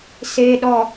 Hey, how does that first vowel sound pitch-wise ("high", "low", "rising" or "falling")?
low